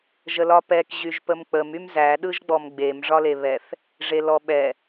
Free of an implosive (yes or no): no